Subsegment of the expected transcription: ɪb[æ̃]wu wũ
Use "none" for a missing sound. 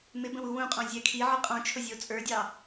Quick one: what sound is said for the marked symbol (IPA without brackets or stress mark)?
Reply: ə̃